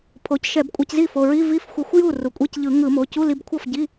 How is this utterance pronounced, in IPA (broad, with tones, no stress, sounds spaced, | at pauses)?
pʰ o˩˥ c ʃ ɛ˧˩˧ b kʷʼ a˧ c z i˥˩ f o˩˧˩ ɹ i˧˥˧ v i˧˥˧ f xʷ ʌ˧ xʷ j u˥˩ r u˩˥ kʷʼ e˧˥˧ c ʎ ɯ˧˩˧ ŋ ɯ˧˩˧ m o˩˧˩ c u˧˥˧ l i˧ b kʷʰ ʌ˥˩ f ɟ i˧˥˧